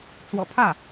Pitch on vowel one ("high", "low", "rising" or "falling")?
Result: low